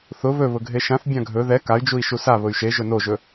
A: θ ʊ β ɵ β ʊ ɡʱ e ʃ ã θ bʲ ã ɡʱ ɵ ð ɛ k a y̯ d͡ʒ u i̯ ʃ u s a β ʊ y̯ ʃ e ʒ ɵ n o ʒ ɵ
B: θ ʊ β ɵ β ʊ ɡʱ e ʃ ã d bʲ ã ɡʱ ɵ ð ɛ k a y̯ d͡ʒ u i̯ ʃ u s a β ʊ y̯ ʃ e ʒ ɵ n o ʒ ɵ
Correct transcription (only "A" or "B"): A